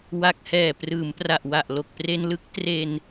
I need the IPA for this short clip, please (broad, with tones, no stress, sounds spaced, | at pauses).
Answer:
w a˨˩ k̚ h ɛː˨˩ p r ɯː˩˦ m p r a˨˩ ʔ w a˨˩ ʔ l o˨˩ k̚ p r e˧ n l ɯ˦˥ k̚ t r e˧ n